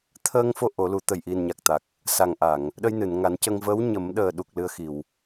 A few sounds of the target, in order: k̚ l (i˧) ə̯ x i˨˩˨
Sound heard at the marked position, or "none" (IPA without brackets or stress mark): ɨ˧